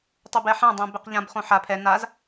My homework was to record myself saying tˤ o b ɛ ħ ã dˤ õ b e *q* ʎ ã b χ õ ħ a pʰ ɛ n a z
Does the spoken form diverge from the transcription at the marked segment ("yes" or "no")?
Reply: no